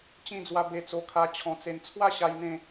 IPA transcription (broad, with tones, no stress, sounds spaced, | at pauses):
t͡ɕ ĩ˧ d͡z w a˧ b e˧ t͡s o˧ kʰ a˧ t͡ɕʰ ɔ̃˧ t͡s e˧ n t͡sʰ w a˦ ɕ a˧ j n̪ ẽ˧